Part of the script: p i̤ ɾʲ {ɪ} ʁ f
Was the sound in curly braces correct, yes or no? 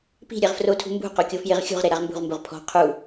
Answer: no